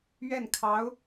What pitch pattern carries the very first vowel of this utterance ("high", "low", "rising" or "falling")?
falling